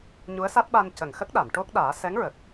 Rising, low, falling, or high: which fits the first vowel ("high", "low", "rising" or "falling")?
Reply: rising